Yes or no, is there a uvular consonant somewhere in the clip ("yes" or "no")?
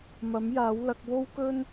no